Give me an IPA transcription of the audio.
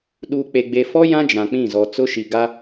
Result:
ɗ uː˨ k͡p e˨ ɡ͡b e˨ f ɔ˦ j ã˦ d͡ʒ ã˨ k͡p ĩ˦˨ z ɔ˨ t͡s ʊ˦ ʃ i˨ ɡ a˦

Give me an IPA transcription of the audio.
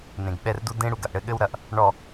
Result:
n ẽ˨ ɡ ɓ ɛ˦˨ r d u˦ d ẽ˦ ɽ u˨ ɡ ɐ˨ ʔ ɽ ɘ˦ ɠ ɘ˦ w ɾ ɐ˨ ʔ | ɳ ɔ˨

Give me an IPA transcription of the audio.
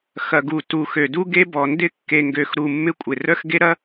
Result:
x ɐ˨ ɡ u˨ t u˨ x ø˨ d u˦ ɡ e˦ b ɔ˨ n d ɪ˦ kː e˨ ŋ ɡ ø˨ x ɾ u˨ mː ɪ˦ kʷʼ ɪ˨ r œ˦ x ɡ e˦ ɾ ɐ˦

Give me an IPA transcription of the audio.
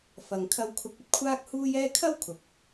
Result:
f ɐ˧ ŋ kʰ ɐ˧ w kʰ ʊ˧ k̚ ɵ˥ t̚ kʷʰ aː˥ k̚ h uː˥ j ɛː˥ kʰ ɐ˥ w kʰ ʊ˨˥ k̚

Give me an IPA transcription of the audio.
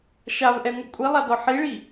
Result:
ʃ a v ʔ ɛ ŋʷ ɯ kʷʼ i lˠ a d ɔ ħ i ɭ i

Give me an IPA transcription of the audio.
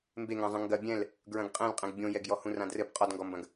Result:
m b e ŋ ã zˤ ɐ̃ ŋ ɡ ɐ bʲ ɛ̃ l | ɡ ɹ ɐ̃ ɡ qʼ ẽ l qʼ ẽ ɡ bʲ õ j ɛ ɡ j ɔ h ũ r ã d r ɘ b qʼ ɔ d ŋ ɡ ɔ m b ɐ̃ ɡ

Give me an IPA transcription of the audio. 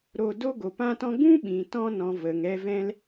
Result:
ɾ o˧ d o˧ ɡ o˨ p ã˧ t ɔ̃˧ ɡ ũ˦ ɓ ĩ˨ t ɔ̃˧ n ɔ̃˨ v ə˨ ŋ ɛ˧ v ɛ̃˦ l

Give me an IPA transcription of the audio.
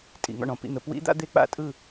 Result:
tʼ ḭ˩˧ ŋ ɔ̰˥˩ ɳ ɔ̃˥˩ p ḭ˥˩ n̪ ə˩˧ p w ḭ˦˥ d̪ a̰˦˥ d̪ e˦˥ k͡p a̰˦˥ tʼ ɯ˥˩

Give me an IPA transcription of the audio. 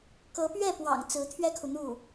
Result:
k ɤ˧˥ p ɥ ɛ˥˩ p w ɑ̰˨˩ ŋ t͡s ɹ̩˧˥ t̪ʰ ɥ ɛ˥ kʰ u˨ n̪ u˥˩

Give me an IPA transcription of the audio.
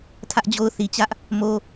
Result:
tʰ ä˦ ʔ d͡ʑ o˦ ʊ̯ θ i˨ t͡ɕ ä˦ ʔ | m o˦

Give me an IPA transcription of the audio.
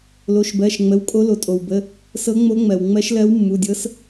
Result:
l o˩˧˩ ʃ b ɜ˩˧˩ ʃ ŋ͡m ə˩˧˩ w kʼ o˧˥ l o˩ tʼ o˩ w b ə˩˧˩ | s ɤ˧˥ ŋ͡m o˧˥ ŋ͡m ɜ˩ w ŋ͡m ɜ˧˥ ʃ l ɜ˧˥ w mː u˩˧˩ dʲ ɤ˧˥ s

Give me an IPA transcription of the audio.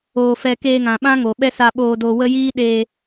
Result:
oː˧ f ɛ˧ k eː˧ ŋ ã˨ ɓ ã˦ ŋ o˨ ɓ ɛ˦ s a˧ ɓ oː˧ d o˧ w ə˦ j iː˦ ɗ eː˧

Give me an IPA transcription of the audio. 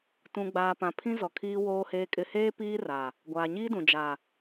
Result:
t ũ˨ ɡ͡b aː˨ p ã˨ pʰ ĩ˦ z ɔ˨ kʰ iː˨ w oː˨ h eː˨ kʼ ɪ˨ h eː˦ p iː˦ r a˨ | ɡʷ aː˨ ɲ iː˦ d ũ˨ d͡ʒ a˨

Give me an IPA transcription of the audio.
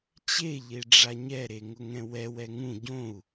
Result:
t͡ɕ e ʎ e ɖ͡ʐ a ɲ ɛ ɾ e ŋ ʊ ŋ ɛ̃ w ɛ w ɛ ŋ ũ ɟ õ u̯

